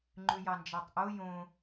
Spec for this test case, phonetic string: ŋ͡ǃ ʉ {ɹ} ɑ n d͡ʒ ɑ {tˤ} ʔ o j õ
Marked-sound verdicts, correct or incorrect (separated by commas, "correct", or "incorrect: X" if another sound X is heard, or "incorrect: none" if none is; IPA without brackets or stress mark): incorrect: j, correct